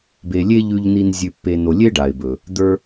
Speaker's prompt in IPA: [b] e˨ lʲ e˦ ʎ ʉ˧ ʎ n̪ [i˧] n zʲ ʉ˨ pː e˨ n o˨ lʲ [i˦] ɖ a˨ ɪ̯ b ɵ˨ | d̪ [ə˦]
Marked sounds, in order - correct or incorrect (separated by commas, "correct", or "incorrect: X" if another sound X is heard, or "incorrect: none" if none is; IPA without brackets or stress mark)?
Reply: correct, correct, incorrect: e˦, incorrect: ə˞˦